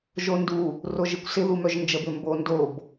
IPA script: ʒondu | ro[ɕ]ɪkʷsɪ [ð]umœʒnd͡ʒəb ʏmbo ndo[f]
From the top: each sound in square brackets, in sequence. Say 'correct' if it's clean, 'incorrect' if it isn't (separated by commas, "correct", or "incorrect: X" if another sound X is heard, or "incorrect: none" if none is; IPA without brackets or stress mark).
incorrect: ʒ, correct, incorrect: b